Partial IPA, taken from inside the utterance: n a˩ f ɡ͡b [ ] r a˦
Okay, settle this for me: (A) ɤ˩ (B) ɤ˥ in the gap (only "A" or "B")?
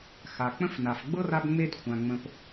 B